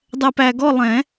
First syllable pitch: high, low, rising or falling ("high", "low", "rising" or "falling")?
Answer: low